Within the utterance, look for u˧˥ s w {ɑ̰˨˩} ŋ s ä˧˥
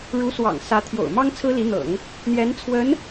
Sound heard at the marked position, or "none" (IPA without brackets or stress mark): ɑ̰˨˩